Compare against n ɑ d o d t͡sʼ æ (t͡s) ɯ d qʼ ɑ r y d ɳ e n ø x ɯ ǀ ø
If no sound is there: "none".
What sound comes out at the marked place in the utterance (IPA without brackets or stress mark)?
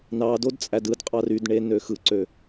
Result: d